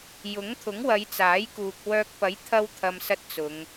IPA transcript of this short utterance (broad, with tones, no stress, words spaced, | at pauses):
jʊ˨˥ŋt̪ʰʊ˨˥ŋwɐ˨˧j t͡saː˨˥jkuː˨k̚wœː˧k̚ pɐ˨˥jt̪ʰɐ˧wt̪ʰɐ˨m sɐ˥t̚t͡sʊ˨˧ŋ